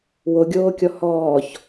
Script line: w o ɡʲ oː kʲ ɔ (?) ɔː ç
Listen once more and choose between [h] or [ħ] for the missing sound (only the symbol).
h